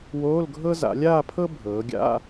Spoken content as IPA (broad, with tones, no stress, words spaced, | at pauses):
woː˧˥˧lɡʱɤ˥ za̰˩˧lʲaː˥˧pʰɤ˥ bʱɤː˩˧ɡʲa̰˧˥˧